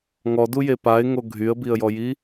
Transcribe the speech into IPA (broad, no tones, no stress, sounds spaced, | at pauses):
ŋ ɔ d u j e p a ɪ̯ ŋ o ɡʱ y ə̯ b i ə̯ j ɔ j i